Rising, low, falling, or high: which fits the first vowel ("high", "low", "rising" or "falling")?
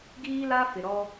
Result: high